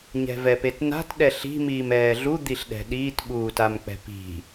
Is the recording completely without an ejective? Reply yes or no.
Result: yes